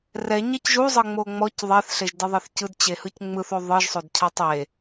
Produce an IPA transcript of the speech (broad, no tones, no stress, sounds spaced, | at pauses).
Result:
r ɛ ɲ ɛ c ʒ u zˤ ɤ ŋ͡m o ŋ͡m ɔ c ðˤ ɛ θ ɬ e ʒ d e ðˤ e θ c ɯ d t͡ɕ e h ɯ c ŋ͡m ɯ θ o ðˤ ɯ ʒ sˤ o d cʰ a tˤ e